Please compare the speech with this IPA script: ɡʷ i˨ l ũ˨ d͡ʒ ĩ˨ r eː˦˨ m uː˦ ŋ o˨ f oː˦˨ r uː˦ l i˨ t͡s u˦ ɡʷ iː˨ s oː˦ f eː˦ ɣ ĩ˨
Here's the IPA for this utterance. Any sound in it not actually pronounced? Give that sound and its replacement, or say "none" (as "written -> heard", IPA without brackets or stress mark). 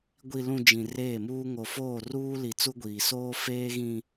none